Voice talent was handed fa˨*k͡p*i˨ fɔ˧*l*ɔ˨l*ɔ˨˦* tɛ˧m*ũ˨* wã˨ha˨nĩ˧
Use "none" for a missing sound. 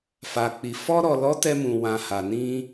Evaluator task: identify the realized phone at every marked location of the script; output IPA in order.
k͡p, ɾ, ɔ˨˦, ũ˨

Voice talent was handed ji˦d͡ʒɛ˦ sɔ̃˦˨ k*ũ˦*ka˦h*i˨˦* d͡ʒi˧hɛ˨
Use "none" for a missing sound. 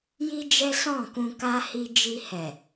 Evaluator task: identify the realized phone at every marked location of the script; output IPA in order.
ũ˧, i˦

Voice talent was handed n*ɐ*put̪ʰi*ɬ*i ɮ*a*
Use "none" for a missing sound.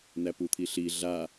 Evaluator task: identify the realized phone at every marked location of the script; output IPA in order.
æ, ɬ, a

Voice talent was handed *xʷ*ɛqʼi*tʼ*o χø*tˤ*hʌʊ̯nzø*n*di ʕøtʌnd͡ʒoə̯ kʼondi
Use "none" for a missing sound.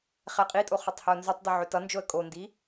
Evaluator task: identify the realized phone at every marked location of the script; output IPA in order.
χ, tʼ, tˤ, tˤ

